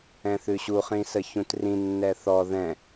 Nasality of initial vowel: nasal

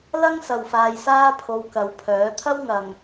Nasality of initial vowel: oral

